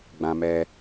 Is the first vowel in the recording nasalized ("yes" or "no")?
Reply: yes